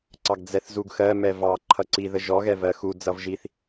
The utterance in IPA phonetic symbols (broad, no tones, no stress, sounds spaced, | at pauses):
ǀ ɑ ɡ d͡z ɛ θ z u ɡ x ɜ m ɛ v ɑ ǃʰ ʌ ǀ i ð ə ʒ ɔ ɣ ɛ v ɜ x u d͡z ʌ v ʒ i θ